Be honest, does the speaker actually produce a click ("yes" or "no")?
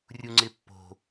yes